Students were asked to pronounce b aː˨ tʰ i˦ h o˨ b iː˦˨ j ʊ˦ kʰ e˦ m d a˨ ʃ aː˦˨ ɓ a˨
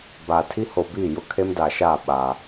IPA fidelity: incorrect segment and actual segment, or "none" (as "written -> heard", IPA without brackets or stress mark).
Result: none